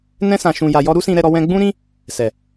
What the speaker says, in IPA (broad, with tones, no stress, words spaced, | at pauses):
nɛ̃˧ sã˨ʃũ˨ja˨ jɔ˧ ɾu˦sĩ˧ɾɛ˧ɾɔ˧ wɛ̃˧ɡ͡bũ˦ɾĩ˦ | sɛ˨